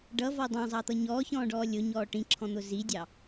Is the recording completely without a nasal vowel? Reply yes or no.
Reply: no